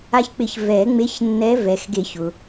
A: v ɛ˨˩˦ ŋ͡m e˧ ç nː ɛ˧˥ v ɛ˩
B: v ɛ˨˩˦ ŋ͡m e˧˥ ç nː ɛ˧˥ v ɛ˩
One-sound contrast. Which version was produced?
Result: B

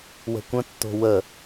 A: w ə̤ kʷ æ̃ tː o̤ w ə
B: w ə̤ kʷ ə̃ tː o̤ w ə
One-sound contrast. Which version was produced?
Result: B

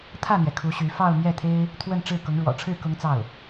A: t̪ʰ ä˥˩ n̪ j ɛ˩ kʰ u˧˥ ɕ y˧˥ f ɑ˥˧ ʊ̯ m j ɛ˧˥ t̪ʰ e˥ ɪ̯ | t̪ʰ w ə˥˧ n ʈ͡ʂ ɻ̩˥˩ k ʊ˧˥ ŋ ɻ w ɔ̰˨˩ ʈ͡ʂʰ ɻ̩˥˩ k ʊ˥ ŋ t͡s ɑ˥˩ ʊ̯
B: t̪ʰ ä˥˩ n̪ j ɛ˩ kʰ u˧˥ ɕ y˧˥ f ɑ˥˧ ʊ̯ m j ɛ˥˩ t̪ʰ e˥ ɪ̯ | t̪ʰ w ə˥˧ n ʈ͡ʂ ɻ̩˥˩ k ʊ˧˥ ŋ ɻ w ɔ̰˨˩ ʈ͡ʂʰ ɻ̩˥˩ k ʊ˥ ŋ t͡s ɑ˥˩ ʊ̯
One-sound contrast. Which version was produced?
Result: B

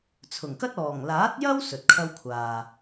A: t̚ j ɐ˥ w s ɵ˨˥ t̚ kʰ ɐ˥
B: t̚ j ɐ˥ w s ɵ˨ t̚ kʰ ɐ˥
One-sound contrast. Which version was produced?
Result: B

